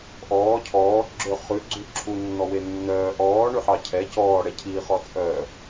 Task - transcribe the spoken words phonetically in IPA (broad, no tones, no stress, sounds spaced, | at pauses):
ʔ ɔː cʰ ɔː ɡ͡ǁ ø χ ʉ ɡ͡ǀ ʉ ǁʰ u nː ɔ w e nː œː ʔ ɔː ɳ ʉ ħ ɑ cʰ ɛ c ɔː ɽ ɛ cʰ iː χ ɔ t͡sʼ œ